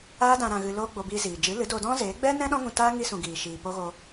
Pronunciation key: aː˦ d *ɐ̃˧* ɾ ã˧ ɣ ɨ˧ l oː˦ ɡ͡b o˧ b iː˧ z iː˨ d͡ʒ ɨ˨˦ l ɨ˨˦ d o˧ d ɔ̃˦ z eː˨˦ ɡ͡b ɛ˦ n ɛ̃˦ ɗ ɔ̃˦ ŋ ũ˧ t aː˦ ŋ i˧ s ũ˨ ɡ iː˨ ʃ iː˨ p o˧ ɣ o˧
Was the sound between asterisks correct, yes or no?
no